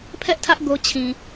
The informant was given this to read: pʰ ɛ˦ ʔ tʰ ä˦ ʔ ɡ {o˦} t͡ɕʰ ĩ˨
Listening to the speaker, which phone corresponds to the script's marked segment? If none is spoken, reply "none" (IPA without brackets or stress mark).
o˦